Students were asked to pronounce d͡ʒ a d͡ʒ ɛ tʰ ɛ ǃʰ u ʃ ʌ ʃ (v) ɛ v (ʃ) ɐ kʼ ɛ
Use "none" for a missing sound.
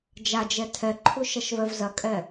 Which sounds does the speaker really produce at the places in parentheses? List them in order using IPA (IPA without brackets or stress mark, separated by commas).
v, z